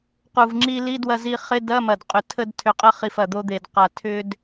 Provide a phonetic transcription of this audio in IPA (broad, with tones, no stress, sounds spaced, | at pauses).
q u˨˩ v ŋ͡ǁ i˧ l i˧˥˧ d w ɐ˧ z i˧ χ ɪ˧˥˧ d ɐ˧˥˧ m ɐ˨˩ d qʼ ʏ˨˩ tʰ ə˧ d tʰ ʏ˨˩ qʼ ə˧ χ i˨˩ f ɐ˨˩ d̪ o˧ d̪ e˨˩ d q a˨˩ tʰ ʏ˧ d